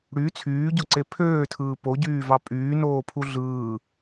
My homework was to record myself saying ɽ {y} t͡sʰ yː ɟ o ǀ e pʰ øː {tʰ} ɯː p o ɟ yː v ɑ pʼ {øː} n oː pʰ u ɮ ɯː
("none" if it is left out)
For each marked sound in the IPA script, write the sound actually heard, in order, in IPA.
y, tʰ, yː

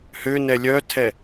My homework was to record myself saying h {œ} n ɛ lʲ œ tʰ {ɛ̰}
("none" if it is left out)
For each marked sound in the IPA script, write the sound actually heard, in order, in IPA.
ø, ɛ

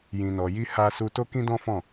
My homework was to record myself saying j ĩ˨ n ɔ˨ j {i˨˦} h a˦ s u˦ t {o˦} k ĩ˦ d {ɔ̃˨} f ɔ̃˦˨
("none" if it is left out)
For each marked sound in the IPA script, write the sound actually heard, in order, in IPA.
i˧, o˦, ɔ̃˦

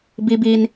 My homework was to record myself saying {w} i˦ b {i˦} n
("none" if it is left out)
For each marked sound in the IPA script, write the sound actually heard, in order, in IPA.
b, i˦

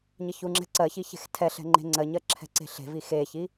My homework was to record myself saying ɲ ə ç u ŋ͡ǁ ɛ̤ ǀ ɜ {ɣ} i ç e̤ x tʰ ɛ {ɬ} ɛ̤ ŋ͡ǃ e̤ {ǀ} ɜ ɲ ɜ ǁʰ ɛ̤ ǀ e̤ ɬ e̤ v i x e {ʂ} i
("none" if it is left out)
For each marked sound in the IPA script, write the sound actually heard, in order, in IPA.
ç, ɬ, ŋ͡ǀ, ç

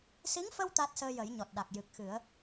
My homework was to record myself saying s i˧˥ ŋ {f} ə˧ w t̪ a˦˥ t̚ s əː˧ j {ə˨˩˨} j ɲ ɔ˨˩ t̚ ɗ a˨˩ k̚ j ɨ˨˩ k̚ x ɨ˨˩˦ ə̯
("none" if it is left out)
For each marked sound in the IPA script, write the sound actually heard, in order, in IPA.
f, ə˨˩˦

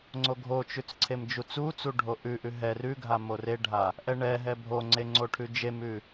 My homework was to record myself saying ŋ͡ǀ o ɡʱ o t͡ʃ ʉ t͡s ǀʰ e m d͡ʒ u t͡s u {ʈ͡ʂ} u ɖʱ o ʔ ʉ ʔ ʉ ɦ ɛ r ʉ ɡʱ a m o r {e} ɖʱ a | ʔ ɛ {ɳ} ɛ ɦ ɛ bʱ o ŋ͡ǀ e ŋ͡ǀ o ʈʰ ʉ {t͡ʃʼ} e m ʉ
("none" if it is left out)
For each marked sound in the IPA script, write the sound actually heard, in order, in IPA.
t͡s, e, ɳ, d͡ʒ

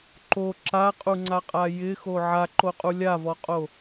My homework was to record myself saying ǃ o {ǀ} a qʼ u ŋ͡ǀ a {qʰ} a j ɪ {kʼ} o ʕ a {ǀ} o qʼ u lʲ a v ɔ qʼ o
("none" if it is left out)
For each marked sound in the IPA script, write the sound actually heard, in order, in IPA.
ǁ, qʼ, x, ǃ

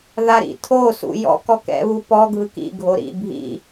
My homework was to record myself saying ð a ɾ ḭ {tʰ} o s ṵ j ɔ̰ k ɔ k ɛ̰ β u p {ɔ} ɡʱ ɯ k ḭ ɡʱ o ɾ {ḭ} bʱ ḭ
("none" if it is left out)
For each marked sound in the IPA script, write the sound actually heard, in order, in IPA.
tʰ, ɔ, ḭ

